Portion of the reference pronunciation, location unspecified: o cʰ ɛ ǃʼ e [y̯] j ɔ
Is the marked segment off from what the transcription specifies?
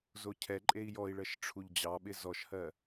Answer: yes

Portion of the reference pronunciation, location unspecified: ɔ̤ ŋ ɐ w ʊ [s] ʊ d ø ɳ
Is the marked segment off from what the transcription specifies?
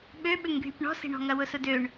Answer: no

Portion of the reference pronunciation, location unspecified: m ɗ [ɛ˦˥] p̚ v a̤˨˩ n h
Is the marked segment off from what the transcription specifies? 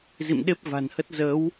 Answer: yes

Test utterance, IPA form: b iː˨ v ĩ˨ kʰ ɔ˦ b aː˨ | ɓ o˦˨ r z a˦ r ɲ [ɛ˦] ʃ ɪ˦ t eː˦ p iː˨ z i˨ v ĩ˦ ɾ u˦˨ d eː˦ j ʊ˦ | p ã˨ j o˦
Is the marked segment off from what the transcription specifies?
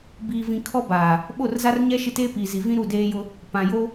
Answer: no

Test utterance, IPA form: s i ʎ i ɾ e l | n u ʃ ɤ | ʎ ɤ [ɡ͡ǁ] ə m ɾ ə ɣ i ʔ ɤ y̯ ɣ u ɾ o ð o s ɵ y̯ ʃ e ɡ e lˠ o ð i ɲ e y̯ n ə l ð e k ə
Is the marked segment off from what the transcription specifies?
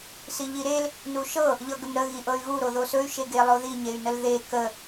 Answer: yes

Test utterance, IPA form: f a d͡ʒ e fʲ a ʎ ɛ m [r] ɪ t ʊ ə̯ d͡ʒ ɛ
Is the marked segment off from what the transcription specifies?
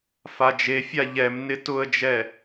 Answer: yes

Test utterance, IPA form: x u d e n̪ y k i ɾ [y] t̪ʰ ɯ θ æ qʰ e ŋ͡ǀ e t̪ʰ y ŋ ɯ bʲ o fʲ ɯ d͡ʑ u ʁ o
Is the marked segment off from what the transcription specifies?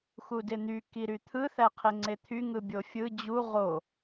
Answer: no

